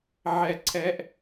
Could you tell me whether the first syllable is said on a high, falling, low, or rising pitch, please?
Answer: falling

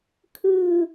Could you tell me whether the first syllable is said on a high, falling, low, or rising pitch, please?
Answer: falling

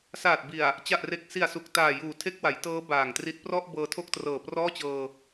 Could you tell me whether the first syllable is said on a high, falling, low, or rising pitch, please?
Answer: low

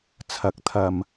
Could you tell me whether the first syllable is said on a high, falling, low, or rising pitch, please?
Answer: rising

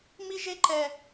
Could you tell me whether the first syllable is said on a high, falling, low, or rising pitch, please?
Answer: high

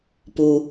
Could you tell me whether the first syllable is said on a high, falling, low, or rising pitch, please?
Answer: low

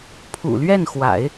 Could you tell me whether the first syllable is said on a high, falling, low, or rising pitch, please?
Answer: low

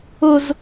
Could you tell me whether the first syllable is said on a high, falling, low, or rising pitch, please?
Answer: high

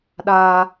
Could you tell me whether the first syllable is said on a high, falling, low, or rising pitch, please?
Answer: high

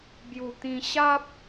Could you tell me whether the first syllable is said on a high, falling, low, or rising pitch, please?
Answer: low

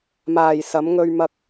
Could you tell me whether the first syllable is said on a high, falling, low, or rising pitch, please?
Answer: low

